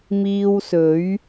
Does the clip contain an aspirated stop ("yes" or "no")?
no